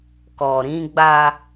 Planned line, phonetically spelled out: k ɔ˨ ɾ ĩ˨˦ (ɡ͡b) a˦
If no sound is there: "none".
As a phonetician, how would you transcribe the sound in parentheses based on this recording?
ɡ͡b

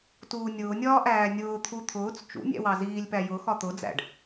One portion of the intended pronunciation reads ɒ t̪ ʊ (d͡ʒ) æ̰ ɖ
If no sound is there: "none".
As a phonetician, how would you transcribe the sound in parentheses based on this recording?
d͡z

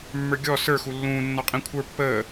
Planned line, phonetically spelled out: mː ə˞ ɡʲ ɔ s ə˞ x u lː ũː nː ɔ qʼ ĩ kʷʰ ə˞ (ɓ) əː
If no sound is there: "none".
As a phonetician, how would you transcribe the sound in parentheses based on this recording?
pː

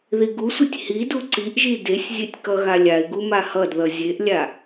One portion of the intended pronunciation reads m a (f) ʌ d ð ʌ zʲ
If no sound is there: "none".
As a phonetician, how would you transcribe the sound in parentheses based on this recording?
h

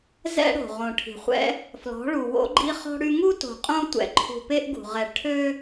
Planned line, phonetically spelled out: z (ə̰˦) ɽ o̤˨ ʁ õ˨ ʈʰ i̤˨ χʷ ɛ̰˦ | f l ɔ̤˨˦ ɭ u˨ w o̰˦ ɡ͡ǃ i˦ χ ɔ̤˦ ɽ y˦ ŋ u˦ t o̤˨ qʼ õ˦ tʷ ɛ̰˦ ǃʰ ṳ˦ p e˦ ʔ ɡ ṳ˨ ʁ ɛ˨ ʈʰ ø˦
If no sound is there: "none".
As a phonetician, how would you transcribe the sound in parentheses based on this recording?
ɛ̰˦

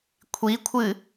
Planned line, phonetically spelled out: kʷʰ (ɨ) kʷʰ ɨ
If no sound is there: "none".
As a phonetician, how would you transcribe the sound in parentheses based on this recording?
i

